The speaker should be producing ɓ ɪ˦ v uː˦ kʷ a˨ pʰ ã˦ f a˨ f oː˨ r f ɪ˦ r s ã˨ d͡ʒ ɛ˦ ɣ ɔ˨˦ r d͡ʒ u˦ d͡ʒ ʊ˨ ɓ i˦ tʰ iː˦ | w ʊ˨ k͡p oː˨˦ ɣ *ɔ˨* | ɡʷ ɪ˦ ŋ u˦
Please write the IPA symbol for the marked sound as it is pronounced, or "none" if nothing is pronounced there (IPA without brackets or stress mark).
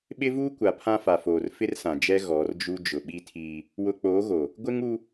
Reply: o˨